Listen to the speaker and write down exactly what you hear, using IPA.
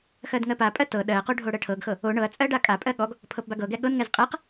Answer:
x ɜ d ŋ ɜ p a pʼ ɜ t ɤ ɗ ɜ q o ɖʱ o ɽ ɜ ʈʰ ɤ ɡ x ɤ | o ɳ ɤ ɐ̯ t͡sʼ ɜ ɖ a kʼ a pʼ ɜ ɠ ɔ ɡ | pʰ ɤ p b a ɡ ɤ ɡ ɛ ɠ ɤ n ŋ ɛ z qʼ ɛ q

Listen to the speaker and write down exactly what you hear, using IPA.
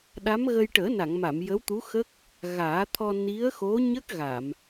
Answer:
ɗ a˧˥ m ɣ ə˧ j ʈ əː˨˩˦ n a˨˩˨ ŋ m a˨˩˨ m j ə˧˥ w t̪ u˧˥ x ə˦˥ k̚ | ɣ aː˨˩˦ t̪ʰ ɔ˧ n i˧˥ ə̯ x o˧˥ ɲ ə˦˥ k̚ ɣ a˨˩˨ m

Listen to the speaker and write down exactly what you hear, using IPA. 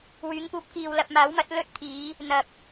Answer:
w yː˨˧ ŋ p uː˧ p̚ k iː˨ w l ɐ˨ p̚ m aː˨˥ w m ɐ˨˥ t̚ l ɵ˥ t̚ t̪ʰ iː˨˧ | n̪ ɐ˨ k̚

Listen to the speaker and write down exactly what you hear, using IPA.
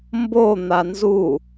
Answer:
m b o n̪ a n z u

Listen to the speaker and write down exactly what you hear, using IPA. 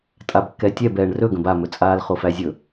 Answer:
tʼ a b kː ɛ tʲ ɛ b ɛː ɳ r ɵ ɡ ə̃ b a m ɵ t͡sʼ aː l χ o f æ zʲ ɵ

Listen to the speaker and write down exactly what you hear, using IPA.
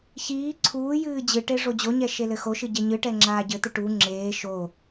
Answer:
ç iː ǀʰ uː j ɨː d͡ʑ ɨ ʈ e ʐ o d͡ʑ o ɲ ɛ ʃ e l ɘ x o ʃ ɨ ɟ e ɲ ɨ ʈ ɛ ŋ͡ǁ aː ɟ ɘ t̪ ɨ ʈ u ŋ͡ǁ eː ʃ o

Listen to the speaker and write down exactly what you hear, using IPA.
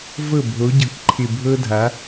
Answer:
v ɤ˦˨ bʱ o˨˦ ɟ ɤ˨ k ǃʰ ɪ˨ bʱ ɤ˦ dʱ a˨˦

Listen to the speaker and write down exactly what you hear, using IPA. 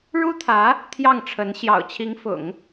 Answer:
ɻ u˥ t̪ʰ ä˧˥ | t̪ʰ j ɑ˥˩ ŋ ʈ͡ʂʰ ə˧˥ n ɕ j ɑ̰˨˩ ʊ̯ t͡ɕʰ i˧˥ ŋ f ʊ̰˨˩˦ ŋ

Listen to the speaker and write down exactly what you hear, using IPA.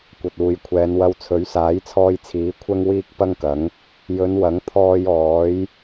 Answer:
kʷ ɐ˨ t̚ uː˨ j kʷʰ ɛː˨˧ n w ɐ˧ w t͡sʰ ɵ˨˥ ɥ s aː˨˥ j t͡sʰ ɔː˧ j t͡sʰ iː˨˥ kʷʰ ɐ˥ ŋ w iː˥ k̚ p ɐ˥ ŋ k ɐ˨˥ ŋ | j ɵ˨˧ n w ɐ˨˥ ŋ t̪ʰ ɔː˧ j ɔː˨˥ j

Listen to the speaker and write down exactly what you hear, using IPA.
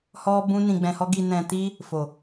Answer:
h ɔ˦ b ũ˦ n ĩ˧ ɡ͡b ɛ̃˧ h ɔ˦ ɡ i˧ n ɛ̃˧ t i˦ | f o˨

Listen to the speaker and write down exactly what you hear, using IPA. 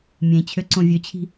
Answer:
mʲ ẽ t͡ɕʰ ø ǀ õ vʲ ø t͡ɕʰ i̤

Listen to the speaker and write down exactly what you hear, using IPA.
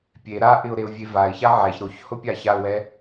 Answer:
pʲ e ɾ a ʔ ɪ ʊ̯ ɾ e ʊ̯ vʲ e v a ɪ̯ ç a ʕ ɛ ç ɾ o ç h ʊ pʲ a ç a ʊ̯ w ɛ

